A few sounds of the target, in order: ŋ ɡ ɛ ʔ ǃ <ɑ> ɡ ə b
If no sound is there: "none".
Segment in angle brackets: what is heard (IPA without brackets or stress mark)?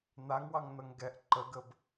ə